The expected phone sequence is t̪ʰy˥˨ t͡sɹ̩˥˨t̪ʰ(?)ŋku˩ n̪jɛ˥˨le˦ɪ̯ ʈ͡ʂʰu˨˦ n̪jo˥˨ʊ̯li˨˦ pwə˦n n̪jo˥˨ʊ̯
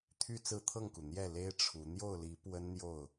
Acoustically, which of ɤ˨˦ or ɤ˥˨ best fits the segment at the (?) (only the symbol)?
ɤ˥˨